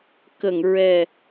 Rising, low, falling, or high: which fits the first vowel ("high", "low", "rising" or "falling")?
low